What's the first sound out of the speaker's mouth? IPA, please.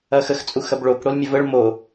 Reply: ɐ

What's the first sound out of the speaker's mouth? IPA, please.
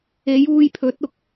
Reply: e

